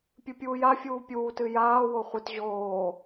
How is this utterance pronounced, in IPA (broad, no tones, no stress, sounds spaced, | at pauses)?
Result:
pʲ ɨ pʲ uː j a fʲ uː pʲ uː t ɨ j aː w o χʷ ɨ t ʑ oː